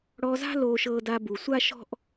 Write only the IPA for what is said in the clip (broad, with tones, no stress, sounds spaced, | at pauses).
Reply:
ɽ ɔ˧ z a̤˥ l oː˧ ʃ ɤː˧ d a˧ b u˩ sʷ a˥ ʃ ɔ̤˥ ʔ